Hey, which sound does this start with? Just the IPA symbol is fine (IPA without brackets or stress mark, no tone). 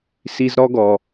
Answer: s